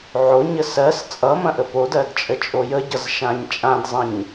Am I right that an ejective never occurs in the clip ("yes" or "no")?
no